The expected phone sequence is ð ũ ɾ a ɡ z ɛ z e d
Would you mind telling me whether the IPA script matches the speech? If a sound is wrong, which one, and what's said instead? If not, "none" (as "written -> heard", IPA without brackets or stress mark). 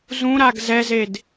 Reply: ð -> z